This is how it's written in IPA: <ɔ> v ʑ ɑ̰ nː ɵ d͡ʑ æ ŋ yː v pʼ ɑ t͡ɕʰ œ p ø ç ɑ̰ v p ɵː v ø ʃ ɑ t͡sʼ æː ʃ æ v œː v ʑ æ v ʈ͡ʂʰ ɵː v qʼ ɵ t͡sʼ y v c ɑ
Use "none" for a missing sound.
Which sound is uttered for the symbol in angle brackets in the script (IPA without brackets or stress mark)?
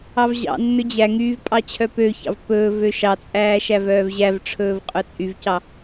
ɑ